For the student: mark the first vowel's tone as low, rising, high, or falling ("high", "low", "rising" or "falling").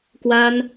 high